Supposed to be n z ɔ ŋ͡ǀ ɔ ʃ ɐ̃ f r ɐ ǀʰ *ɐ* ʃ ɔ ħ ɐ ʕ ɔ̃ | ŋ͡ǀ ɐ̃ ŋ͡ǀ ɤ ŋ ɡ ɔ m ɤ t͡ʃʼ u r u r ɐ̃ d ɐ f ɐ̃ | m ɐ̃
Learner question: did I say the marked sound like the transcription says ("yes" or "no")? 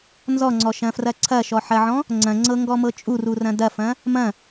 yes